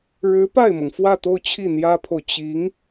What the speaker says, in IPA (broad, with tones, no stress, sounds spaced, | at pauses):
ɻ ɻ̩˧˥ p a˥˩ ɪ̯ m ɤ˩ ŋ f w ä˥˧ t̪ o˥˧ ʊ̯ t͡ɕʰ i˥˩ n̪ j ä˥ pʰ o˨ ʊ̯ t͡ɕ i˧˥ ŋ